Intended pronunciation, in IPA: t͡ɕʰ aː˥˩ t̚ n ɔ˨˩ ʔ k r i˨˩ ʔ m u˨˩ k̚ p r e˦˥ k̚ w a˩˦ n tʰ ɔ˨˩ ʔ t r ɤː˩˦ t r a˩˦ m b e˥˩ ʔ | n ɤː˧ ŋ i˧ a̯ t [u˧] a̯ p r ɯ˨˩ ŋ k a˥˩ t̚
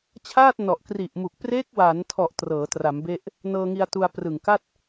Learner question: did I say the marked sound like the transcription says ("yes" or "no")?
yes